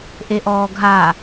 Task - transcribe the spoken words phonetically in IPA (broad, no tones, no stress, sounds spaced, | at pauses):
ʔ e ʔ ɔː ɡʱ a